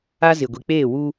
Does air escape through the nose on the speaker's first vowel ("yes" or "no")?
no